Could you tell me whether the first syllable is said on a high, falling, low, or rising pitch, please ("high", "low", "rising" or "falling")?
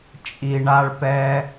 low